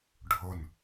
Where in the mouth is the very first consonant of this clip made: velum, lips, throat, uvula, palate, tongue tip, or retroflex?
retroflex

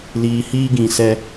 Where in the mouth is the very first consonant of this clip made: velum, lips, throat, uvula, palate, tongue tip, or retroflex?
tongue tip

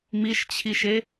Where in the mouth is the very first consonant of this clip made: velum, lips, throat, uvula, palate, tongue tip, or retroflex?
lips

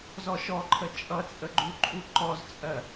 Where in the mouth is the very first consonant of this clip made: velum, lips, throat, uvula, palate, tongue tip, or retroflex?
tongue tip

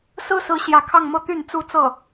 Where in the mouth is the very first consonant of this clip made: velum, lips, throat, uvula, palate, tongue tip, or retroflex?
tongue tip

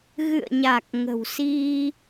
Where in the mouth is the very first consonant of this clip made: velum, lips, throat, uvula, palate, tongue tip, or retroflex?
velum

